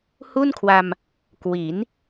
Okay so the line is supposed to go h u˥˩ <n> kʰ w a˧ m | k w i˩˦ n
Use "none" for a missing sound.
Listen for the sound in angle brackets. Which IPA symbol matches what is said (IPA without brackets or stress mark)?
n